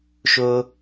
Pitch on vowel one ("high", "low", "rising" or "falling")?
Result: high